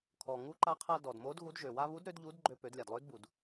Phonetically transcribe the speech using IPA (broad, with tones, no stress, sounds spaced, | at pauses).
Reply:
kʰ ɔ˩ ŋ u˧˥ ǃ a˧˥ qʰ a˧ d ɔ˩ d m o˧˥ d ɣ u˧˥ d ʒ ø˩ w a˧ β u˧˥ d ɾ ø˧˥ d ʎ u˧˥ d ɡ͡ǃ ø˧ p ø˩˧ d lʲ a˩ d lˠ ø˧˥ d b u˩ d